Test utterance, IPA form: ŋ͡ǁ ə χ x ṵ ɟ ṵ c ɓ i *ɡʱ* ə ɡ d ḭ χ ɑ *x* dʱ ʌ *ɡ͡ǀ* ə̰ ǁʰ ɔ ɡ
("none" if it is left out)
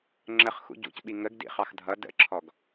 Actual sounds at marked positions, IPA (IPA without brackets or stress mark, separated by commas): ŋ, x, d